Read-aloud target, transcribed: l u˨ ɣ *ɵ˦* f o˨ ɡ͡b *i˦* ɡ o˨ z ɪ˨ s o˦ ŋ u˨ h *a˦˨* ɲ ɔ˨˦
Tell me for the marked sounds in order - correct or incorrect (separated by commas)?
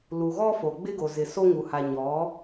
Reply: incorrect, incorrect, incorrect